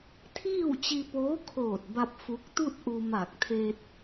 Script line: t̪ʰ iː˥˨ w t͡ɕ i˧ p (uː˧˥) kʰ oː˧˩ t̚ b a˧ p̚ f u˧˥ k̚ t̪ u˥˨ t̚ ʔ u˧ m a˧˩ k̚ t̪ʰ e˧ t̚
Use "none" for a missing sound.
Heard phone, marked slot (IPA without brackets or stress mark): oː˧˥